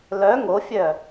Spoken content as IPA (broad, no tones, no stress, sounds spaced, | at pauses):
l œ ŋ o fʲ œ